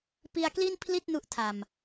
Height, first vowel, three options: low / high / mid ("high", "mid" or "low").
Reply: high